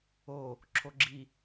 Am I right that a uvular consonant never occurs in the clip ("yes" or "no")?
yes